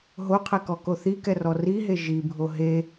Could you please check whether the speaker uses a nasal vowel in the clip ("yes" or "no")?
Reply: no